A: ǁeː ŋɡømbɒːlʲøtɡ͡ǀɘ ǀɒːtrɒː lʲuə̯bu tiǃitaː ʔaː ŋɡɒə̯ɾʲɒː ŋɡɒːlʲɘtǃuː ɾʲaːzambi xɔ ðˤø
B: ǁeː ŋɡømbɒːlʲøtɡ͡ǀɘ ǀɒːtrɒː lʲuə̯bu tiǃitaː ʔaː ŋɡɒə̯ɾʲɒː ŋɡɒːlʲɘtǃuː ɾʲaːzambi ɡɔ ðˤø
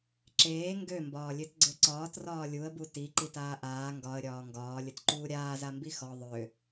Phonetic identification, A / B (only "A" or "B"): A